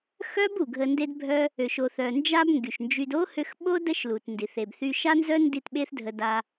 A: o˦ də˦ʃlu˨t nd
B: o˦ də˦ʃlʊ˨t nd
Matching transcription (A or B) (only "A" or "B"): A